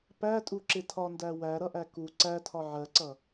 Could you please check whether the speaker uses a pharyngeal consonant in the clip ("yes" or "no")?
yes